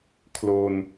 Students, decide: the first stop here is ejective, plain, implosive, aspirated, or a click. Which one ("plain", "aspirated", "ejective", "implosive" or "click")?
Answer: aspirated